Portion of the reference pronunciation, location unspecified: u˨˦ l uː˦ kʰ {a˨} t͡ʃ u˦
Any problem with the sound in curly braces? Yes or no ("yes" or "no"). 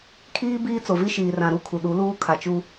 no